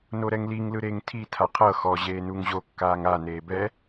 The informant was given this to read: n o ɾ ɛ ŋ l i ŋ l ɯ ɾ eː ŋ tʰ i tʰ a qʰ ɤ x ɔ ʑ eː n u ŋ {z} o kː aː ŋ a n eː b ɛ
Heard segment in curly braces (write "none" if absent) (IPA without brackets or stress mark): ʑ